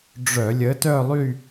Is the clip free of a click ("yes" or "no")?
yes